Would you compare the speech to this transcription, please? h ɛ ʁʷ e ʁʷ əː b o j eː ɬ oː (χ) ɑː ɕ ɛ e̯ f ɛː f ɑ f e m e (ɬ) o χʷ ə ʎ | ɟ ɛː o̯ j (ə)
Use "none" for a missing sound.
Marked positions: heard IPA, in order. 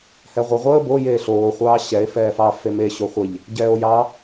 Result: χʷ, ɕ, ɑ

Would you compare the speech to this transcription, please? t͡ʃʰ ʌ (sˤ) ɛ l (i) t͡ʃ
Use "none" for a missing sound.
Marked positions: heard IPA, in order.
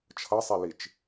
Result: sˤ, i

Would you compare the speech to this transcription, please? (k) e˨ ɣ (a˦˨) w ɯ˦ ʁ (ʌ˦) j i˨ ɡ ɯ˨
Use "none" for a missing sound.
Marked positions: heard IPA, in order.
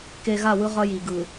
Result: k, a˦˨, ʌ˦

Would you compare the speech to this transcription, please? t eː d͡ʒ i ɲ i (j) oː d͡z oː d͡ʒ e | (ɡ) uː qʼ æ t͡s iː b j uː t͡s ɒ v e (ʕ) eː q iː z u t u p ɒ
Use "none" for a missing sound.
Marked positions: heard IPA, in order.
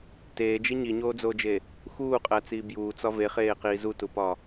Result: ɲ, x, χ

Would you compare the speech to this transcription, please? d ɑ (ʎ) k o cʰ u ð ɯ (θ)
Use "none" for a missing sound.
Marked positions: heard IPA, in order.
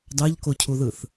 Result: ʎ, θ

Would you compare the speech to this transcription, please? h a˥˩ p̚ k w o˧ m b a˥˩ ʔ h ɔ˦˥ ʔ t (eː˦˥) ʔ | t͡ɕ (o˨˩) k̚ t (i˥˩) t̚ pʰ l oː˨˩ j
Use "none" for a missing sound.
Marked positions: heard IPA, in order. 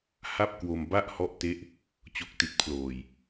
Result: e˦˥, o˨˩, i˨˩

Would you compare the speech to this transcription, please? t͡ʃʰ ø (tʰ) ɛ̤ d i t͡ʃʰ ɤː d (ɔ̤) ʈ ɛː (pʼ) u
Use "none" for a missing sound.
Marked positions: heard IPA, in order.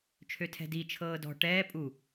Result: tʰ, ɔ̤, pʼ

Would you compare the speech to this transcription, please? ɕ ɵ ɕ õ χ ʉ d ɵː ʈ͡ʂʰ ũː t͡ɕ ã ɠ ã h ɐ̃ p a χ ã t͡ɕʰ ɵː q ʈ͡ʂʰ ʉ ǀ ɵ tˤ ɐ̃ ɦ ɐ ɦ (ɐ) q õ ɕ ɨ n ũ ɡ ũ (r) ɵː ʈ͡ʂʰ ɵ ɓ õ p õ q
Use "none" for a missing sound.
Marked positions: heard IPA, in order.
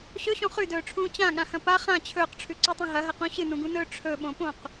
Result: ɐ, n

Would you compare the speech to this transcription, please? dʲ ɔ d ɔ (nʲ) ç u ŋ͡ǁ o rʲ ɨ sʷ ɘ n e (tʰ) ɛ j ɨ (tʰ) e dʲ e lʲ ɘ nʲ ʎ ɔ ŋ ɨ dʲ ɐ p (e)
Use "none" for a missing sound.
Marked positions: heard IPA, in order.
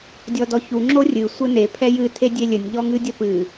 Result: none, pʰ, tʰ, ɨ

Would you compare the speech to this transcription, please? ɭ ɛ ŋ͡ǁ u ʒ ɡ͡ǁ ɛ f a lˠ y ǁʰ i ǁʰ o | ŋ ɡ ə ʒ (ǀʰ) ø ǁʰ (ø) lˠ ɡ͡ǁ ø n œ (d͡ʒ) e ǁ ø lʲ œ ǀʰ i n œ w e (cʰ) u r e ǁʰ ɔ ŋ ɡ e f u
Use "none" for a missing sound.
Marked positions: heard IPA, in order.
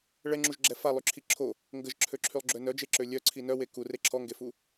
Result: ǁʰ, y, d͡ʒ, k

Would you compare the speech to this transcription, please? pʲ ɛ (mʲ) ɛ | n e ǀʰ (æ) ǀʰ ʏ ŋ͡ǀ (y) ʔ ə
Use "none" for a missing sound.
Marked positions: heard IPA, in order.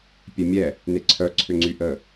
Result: mʲ, œ, y

